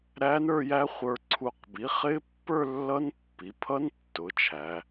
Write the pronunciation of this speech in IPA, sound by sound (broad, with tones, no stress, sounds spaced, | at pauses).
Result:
ɾ æ˦˥ n ə˞˥˧ j æ˦˥ χʷ ə˞˧ ǀʰ u˧ q b i˩˥ χ ɪ˦˥ pː ə˞˥˧ lː ʌ˦˥ n pː i˩˧ pʰ ʌ˦˥ n tː ʊ˩˥ t͡ʃʰ æ˩˧